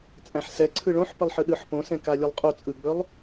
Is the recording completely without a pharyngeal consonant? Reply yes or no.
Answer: no